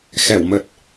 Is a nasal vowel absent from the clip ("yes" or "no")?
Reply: yes